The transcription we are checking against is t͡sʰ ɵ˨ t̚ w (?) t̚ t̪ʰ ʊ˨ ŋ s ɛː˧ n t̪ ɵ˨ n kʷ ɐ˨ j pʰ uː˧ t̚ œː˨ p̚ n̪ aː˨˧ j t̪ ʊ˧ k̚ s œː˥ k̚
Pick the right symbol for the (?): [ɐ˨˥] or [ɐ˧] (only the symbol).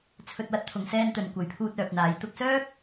ɐ˧